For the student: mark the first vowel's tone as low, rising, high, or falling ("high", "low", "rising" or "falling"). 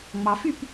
low